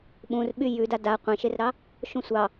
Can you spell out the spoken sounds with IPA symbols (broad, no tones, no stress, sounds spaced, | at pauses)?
ɓ ũ r ɓ y j ʉ d a d a qʷ ẽ ʃ e r ɾ ɑ | ʃ ũ sʷ ɑ